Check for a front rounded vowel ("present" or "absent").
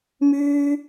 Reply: present